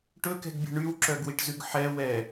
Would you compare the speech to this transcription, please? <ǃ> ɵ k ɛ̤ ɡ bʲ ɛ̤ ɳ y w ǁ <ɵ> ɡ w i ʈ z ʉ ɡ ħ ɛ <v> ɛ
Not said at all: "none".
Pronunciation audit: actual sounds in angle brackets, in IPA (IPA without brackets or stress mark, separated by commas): ʈ, œ, w